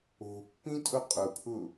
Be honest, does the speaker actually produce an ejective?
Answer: yes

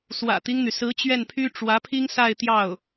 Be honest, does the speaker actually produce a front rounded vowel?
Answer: yes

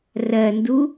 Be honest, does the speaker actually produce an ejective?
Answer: no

